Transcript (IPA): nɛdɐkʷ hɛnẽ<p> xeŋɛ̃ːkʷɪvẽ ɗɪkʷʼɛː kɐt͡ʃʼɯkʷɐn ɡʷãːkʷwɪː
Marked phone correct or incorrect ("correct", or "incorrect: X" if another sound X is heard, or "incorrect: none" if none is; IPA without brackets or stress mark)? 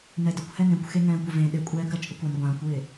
incorrect: kʷ